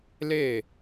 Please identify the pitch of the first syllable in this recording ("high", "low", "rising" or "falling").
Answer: falling